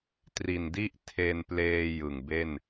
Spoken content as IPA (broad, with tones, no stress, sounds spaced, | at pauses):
t r i˨˩ n d i˥˩ ʔ tʰ e˧ n p l eː˧ j ɯ˨˩ ŋ b e˥˩ n